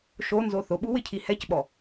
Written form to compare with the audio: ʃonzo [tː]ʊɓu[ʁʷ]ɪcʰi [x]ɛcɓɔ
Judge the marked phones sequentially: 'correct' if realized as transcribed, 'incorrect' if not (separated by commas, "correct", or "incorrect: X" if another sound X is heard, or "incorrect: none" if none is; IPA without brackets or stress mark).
incorrect: θ, incorrect: w, incorrect: h